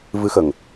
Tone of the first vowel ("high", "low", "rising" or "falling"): rising